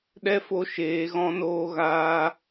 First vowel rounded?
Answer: no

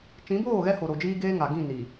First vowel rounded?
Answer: no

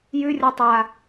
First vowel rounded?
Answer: yes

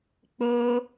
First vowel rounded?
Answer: yes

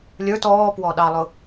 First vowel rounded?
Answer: no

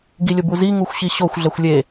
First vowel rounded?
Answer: no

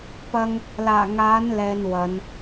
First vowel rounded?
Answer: no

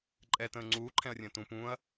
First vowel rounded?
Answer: no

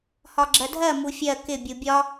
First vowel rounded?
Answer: yes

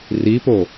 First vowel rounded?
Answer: no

